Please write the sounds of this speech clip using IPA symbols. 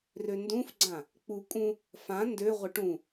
r ø n d ũ f ɡ͡ǀ ã | k͡p u kʼ ũ | f ã n d ø ʁʷ ə ʈ ũ

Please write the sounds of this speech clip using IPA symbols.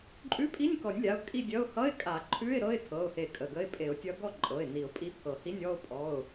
ǃʼ ʉ˧˥˧ pʼ i˧˥˧ nʲ k ɔ˨˩˦ nʲ lʲ a˩˧˩ ʊ̯ kʼ i˥˧ dʲ ʌ˧˥˧ ʊ̯ h ʌ˧˥˧ ɪ̯ kʼ a˨˩˦ ǃʰ ʉ˧˥˧ ɪ̯ ɾ ɤ˧˥˧ ɪ̯ tʰ ɤ˩˧˩ ʊ̯ h e˨˩˦ kʼ ə˩˧˩ ɡ ə˧˥˧ ɪ̯ pʼ e˨˩˦ ʊ̯ tʲ ʌ˧˥ ɡ ɔ˥˧ ǃʼ ɤ˩˧˩ ɪ̯ n i˨˩˦ ʊ̯ pʼ i˧˥ pʰ ɤ˨˩˦ h i˧˥˧ nʲ ɔ˥˧ ʊ̯ pʼ ɔ˩˧˩ ʊ̯

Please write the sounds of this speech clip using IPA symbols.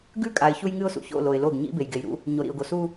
ɡ ʉ˦˨ kʼ a˨ ɪ̯ ç u˦ j ŋ ɨ˦ ʊ̯ s ṵ˨ ç o̰˦˨ l o˨ ɪ̯ l o˦˨ ɡ ɲ ḭ˦ b e˨ j ɡ e˨ j ɾ ṵ˦ | ɲ o˨ ɾ ḭ˨ ʊ̯ ɡ o˨ s u˦

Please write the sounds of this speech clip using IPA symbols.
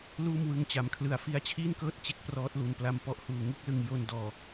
l uː˥˩ m w ɯ˦˥ ŋ t͡ɕ a˩˦ m kʰ l ɯ˧ a̯ f i˦˥ a̯ t͡ɕʰ iː˥˩ n k ɤː˥˩ t̚ t͡ɕ e˦˥ k̚ p r ɔː˦˥ t̚ l u˨˩ n p l a˧ m p ɔ˦˥ ʔ h uː˨˩ ŋ ɯ˥˩ k̚ l ɯ˧ ŋ j o˧ n d ɔː˨˩

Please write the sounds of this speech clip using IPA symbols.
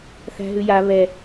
θ æ̤ ɦ ʉ j a β ɛ

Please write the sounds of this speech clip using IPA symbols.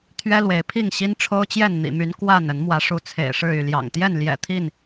t̪ʰ ɥ ɛ˦ l w e˨˦ ɪ̯ pʰ i˥˨ ŋ ɕ i˦ n ʈ͡ʂʰ o˦ ʊ̯ t͡ɕ j ɛ˥˨ n n̪ ḭ˨˩ m y˨˦ n k w a˥˨ n ə˨˦ n m w ä˨˦ ʂ u˨˦ t͡sʰ ḛ˨˩ ɪ̯ ʂ ɻ̩˥˨ y˥˨ l j ɑ̰˨˩ ŋ t̪ j ɛ˥˨ n l j ɛ̰˨˩ t̪ʰ i˥˨ n

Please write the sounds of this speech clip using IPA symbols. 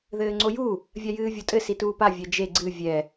ð ɘː ŋ͡ǀ o j u | vʲ a j ɨː vʲ o tʼ ɘ s i t uː p a vʲ ɛ d͡ʒ e ɡ͡ǀ ɨ vʲ ɛ

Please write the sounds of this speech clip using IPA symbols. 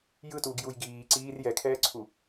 j ɯ t uː ɡ j u j ɡ iː ǀ iː r j ɛ kʰ ɛː ǀʰ u

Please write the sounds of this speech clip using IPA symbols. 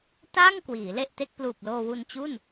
t aː˥˩ ŋ k w iː˩˦ l e˥˩ ʔ t e˦˥ k̚ p l uː˨˩ p̚ l oː˧ w u˧ n t͡ɕ u˥˩ n

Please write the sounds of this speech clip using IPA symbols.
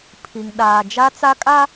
pʰ i˨ ŋ ɗ aː˨ d͡ʒ a˦ t͡s a˦ kʼ a˦

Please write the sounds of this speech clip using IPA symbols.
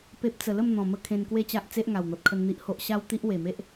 p e˦ p̚ t͡s ə˧ l ə˥˧ m n̪ ɔ̃˨˩ m ə˥˧ kʰ ẽ˧ n k w e˥˧ t͡ɕ a˦ ʔ t͡s e˦ ʔ ŋ a˨˩ w n̪ ɔ˨ t̚ kʰ ə˧ n n̪ i˦ ʔ h o˦ ʔ ɕ a˦ w t̪ i˦ ʔ w e˨˩ m e˦ ʔ

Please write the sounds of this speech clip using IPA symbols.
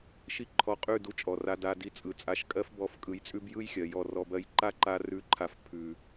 ʃ i˦ ǃʰ ɔ˧ qʼ ʉ˦˨ d u˧ t͡ʃʼ ɔ˨ r a˧ d a˧ d i˧ t͡sʼ ɯ˨ t͡sʼ a˧ ʃ kʼ ɜ˧ f b ɔ˨˦ f kʼ ɯ˨ j t͡sʼ ʉ˧ b j ɯ˦ j xʲ ɜ˨ j ɔ˦˨ r ɔ˧ b ɜ˦ j ǃ a˦ ǃ a˧ r ʉ˦˨ ǃʰ a˧ f pʰ ʉ˨

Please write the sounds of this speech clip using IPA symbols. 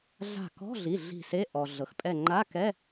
ɮ a̤˧˩ k ɔ̤˧˥˧ ɮ i˩˧˩ ɮ i̤˧˩ s e˧˥˧ ʔ ɔ˩ ɮ ɤ˩ x pʼ ɛ˧˩ ŋ͡ǃ a˧˥˧ k ɛ˧˥˧

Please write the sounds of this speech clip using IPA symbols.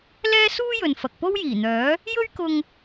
l ɛː˥ s uː˥ j ɵ˨ n f ɐ˨ k̚ p o˥ w j iː˨˩ n̪ œː˨˥ | j ɵ˥ ɥ k ʊ˧ ŋ

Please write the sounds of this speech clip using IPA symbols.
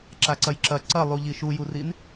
ǁ a ǀ ɐ j ǁ ɐ ǀ ɐ lˠ u ʎ i ʃ u j u r i n

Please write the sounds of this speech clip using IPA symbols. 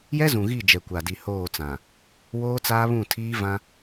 j ɛ˦ z ũ˨ ɣ i˦˨ d͡ʒ ɛ˨ kʷ a˨ d i˨ h oː˦˨ t͡s ã˨ | w oː˦ t͡s aː˦ β ũ˦˨ tʰ iː˦ v ã˦

